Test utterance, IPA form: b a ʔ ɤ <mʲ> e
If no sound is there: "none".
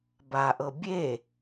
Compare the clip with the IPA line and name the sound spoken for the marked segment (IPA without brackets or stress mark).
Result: bʲ